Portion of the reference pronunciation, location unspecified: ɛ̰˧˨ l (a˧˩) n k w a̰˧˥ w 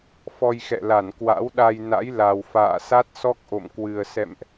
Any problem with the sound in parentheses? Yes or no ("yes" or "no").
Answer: no